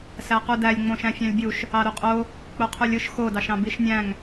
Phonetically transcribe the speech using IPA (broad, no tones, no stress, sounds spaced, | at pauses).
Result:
s æ q u d æ lʲ ŋ͡m õ ʃ æ̃ fʲ ɑ̃ lʲ bʲ u ʃ | ɑ ɾ u qʼ o | k͡p o qʰ u lʲ ɯ ʃ x o d ɑ ʃ ɑ̃ b i ʃ nʲ æ̃ ŋ